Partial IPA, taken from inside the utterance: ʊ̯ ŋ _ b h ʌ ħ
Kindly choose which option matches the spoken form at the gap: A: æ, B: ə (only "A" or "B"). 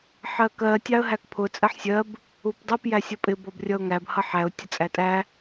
A